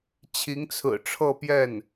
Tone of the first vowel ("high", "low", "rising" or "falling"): rising